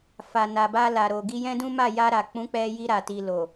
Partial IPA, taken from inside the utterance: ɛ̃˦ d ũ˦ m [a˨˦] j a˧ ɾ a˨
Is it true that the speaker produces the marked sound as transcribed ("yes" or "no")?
no